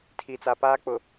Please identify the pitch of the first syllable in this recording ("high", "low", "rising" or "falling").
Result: low